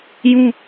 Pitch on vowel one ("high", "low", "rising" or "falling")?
high